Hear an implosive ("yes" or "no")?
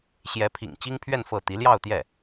no